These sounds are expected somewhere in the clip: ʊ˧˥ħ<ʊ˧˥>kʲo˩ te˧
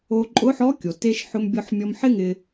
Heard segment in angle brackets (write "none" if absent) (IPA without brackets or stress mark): ɔ˧˥